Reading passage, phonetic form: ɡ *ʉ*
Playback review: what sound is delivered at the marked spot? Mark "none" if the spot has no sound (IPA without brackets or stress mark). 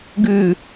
ʉ